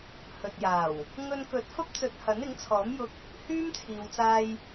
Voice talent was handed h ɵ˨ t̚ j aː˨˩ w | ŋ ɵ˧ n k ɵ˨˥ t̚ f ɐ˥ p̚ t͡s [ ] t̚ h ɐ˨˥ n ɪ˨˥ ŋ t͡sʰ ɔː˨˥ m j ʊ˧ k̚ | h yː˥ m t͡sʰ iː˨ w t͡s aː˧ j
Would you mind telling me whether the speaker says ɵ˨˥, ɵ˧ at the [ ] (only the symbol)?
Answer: ɵ˧